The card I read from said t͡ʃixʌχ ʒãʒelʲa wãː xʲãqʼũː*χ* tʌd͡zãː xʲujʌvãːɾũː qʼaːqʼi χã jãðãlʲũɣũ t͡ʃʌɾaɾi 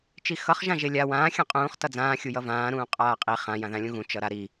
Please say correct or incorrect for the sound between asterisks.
correct